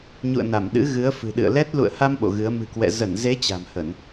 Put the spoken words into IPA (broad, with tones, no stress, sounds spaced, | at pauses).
ɲ ṵ˧˨ ə̯ n a˧˩ m ɗ ɨ̰˧˥ ɣ ɨ˨˦ ə̯ f ɨ̤˨˩ ɗ ɨ̰˧˨ ə̯ l ɛ˦˥ t̚ l ṵ˧˨ ə̯ h a˧ m ɓ o̰˧˨ ɣ ɨ˨˦ ə̯ m ɨ̤˨˩ k w ɛ̰˧˨ z ə˧˩ n z e˨˦ t͡ɕ a̤˨˩ m h ə˧˩˨ n